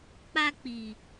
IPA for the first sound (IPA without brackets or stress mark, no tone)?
k͡p